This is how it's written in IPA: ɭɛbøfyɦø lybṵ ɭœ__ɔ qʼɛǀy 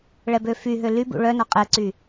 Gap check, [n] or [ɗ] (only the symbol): n